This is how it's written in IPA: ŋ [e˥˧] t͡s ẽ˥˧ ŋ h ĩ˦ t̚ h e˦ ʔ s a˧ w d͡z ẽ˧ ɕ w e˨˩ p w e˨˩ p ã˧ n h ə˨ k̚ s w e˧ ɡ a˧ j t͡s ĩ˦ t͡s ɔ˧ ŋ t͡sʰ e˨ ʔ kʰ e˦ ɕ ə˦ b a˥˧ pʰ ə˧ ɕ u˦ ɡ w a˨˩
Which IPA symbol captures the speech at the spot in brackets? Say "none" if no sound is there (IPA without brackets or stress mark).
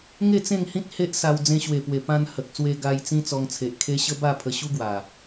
e˥˧